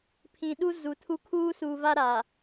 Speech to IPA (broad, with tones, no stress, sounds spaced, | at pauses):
pʰ ĩ˨ ɗ u˦ z u˨ tʰ u˦ kʰ uː˦ s u˨ v a˦ ɾ a˨